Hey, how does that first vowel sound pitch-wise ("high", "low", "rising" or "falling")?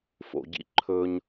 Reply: low